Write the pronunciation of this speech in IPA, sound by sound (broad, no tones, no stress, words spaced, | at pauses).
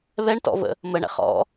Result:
βɛɳtɔ̰və̰ | məɳɛ̰χ ɔ̰